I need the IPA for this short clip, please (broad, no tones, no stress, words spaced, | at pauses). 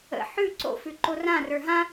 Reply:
ə̰ ħʉ ǀo̰fʉ ǃorã rə˞ɦã